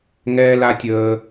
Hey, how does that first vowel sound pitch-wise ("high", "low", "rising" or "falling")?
high